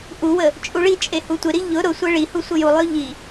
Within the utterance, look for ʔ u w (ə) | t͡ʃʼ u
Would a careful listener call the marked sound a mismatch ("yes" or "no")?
no